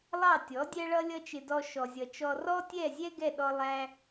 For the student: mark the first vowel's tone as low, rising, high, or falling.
falling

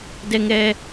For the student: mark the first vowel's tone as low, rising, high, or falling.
high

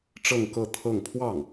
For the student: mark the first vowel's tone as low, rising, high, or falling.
falling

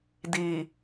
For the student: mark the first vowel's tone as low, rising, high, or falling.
low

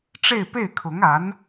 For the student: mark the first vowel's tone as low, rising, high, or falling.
falling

